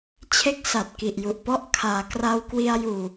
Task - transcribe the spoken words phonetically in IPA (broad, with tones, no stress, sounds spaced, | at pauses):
t͡ɕʰ e˦˥ k̚ s a˨˩ t̚ k i˨˩ ʔ j u˨˩ ʔ p ɔ˥˩ ʔ kʰ aː˩˦ k r a˧ w k w i˧ a̯ j uː˨˩